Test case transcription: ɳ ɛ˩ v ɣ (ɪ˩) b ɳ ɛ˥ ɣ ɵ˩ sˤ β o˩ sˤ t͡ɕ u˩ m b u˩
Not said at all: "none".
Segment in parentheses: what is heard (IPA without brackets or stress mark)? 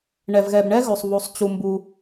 ɛ˩